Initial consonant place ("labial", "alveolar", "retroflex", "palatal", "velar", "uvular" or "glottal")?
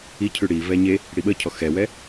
palatal